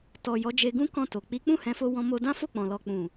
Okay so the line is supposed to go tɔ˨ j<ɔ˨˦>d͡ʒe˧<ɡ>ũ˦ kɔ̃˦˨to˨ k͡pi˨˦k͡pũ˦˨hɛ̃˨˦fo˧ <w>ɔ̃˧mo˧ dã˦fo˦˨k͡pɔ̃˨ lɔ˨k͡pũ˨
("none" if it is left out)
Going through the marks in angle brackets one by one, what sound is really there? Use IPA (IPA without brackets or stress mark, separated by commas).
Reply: ɔ˨˦, ɡ, w